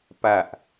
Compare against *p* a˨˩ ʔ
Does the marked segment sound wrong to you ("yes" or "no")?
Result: no